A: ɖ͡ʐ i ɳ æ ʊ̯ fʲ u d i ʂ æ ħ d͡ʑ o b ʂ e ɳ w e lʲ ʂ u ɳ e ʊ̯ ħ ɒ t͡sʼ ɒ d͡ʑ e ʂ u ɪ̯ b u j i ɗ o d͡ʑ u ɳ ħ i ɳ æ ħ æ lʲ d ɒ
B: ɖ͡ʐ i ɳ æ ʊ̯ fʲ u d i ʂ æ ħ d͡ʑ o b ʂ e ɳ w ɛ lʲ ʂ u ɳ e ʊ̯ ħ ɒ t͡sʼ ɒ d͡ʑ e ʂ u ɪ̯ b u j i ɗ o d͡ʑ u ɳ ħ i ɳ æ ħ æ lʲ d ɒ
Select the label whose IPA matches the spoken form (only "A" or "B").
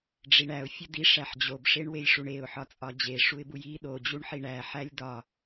A